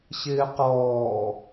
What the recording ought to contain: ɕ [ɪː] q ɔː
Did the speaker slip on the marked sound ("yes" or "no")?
no